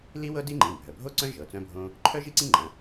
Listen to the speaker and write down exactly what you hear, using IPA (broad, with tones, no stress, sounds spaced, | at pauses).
l i˥ w ɤ˥ d i˥ ŋ͡ǃ ĩ˩˧˩ bʱ œ˩˧˩ bʱ o˥ ǀ œ̃˥ ʒ ɤ˩˧˩ t͡s œ̃˥ bʱ õ˥ | ǃʰ œ˥ ʒ i˥ ǀ ĩ˥ ŋ͡ǃ ɐ̃˩˧˩